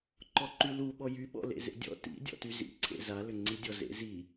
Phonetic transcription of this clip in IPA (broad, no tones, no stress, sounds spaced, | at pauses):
ǃ ɔ ǃ y l u ɓ ɔ j y ɓ ɔ̰ l ḛ z ḛ dʲ ɔ̰ t ḭ dʲ ɔ̰ t y z ḭ ǀʰ ḛ z a l ʏ ŋ͡ǀ i dʲ ɔ z ḛ z i